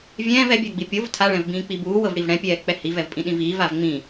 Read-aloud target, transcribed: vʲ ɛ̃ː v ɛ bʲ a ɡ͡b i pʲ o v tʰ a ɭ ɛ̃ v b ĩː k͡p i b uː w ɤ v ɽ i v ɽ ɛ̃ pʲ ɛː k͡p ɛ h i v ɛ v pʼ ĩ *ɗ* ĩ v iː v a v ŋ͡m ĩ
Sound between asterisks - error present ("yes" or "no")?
no